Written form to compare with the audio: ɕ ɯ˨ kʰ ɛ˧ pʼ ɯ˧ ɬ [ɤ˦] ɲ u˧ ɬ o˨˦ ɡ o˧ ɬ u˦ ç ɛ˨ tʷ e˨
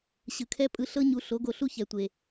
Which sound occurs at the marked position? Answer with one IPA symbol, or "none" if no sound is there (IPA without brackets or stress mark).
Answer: ɤ˦